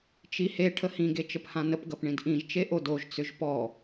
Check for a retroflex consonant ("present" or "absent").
present